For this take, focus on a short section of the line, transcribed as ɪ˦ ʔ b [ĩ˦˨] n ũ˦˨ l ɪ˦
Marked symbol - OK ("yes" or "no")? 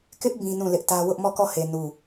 no